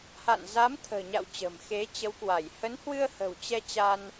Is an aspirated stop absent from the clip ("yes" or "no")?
no